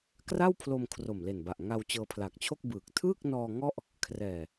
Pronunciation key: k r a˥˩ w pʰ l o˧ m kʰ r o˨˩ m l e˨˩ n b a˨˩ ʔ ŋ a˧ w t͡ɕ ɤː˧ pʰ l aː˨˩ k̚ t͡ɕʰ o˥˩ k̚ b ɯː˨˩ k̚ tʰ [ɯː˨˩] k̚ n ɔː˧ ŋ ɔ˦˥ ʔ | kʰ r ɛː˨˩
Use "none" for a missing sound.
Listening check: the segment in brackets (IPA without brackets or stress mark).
ɯː˥˩